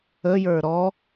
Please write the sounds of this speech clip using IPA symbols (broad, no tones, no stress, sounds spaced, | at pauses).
ə j ə˞ ɾ ɔ